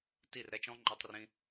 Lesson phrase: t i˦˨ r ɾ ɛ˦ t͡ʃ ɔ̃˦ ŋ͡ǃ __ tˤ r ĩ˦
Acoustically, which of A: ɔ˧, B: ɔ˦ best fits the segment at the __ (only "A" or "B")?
B